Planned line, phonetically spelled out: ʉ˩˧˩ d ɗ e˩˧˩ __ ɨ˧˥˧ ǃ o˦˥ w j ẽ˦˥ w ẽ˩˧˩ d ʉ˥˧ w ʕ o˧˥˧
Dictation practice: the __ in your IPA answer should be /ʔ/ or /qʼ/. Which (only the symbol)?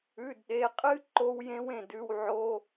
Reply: qʼ